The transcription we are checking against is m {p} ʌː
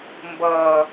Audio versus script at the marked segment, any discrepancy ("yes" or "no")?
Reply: yes